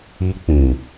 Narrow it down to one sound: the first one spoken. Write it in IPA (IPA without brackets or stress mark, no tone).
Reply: i